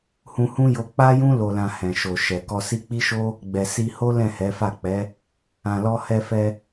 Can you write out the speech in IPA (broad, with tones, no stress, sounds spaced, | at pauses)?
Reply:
h ũ˧ h ũ˦ j o˧ k͡p a˦ j ũ˦ l o˧ l ã˧ h ɛ̃˨ ʃ o˨ ʃ ɛ˨ k ɔ˧ s i˦ k͡p i˦ ʃ o˦ | ɡ͡b ɛ˨ s i˧ h o˦ l ɛ̃˦˨ h ɛ˨˦ f a˦˨ k͡p ɛ˨˦ | ã˨ l ɔ˧ h ɛ˧ f ɛ˧